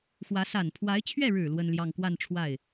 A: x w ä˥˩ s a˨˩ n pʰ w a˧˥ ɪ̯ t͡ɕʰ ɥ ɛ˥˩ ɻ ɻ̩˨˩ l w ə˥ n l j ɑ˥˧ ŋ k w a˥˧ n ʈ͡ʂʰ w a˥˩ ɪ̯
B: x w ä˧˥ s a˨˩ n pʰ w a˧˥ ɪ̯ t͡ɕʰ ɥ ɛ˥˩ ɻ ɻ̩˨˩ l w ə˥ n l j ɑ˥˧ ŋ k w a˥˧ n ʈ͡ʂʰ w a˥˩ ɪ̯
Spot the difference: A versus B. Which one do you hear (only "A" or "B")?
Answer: B